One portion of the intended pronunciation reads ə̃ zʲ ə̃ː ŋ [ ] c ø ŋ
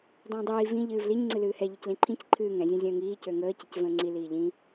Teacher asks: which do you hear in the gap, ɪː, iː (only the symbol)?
iː